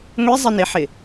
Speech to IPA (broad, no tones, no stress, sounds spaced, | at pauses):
ŋʷ i zˤ ɪ n ɪ ħ ɪ